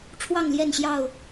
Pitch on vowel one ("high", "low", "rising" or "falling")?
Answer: falling